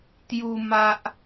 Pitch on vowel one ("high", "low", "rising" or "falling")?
high